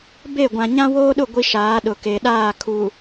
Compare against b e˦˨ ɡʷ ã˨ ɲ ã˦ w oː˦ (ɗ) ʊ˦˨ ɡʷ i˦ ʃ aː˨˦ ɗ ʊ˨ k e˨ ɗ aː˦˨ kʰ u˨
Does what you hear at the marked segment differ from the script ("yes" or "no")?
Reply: no